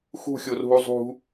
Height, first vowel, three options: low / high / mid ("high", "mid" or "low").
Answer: high